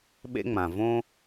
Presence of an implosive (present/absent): present